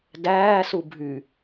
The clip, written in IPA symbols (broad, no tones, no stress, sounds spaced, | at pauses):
d æː s u bʱ y